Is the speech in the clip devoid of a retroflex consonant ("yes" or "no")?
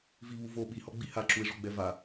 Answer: no